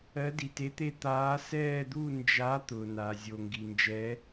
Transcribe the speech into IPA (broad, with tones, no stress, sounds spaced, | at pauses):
ɜ˨˦ d i˩ t e˨˦ t̪ e˦˨ t̪ aː˨˦ s ɛː˦˨ d̪ u˦˨ n d͡ʒ a˨˦ t̪ ʊ˩ n a˩ zʲ o˩ ŋ ɡ i˩ n d͡ʒ ɛ˨˦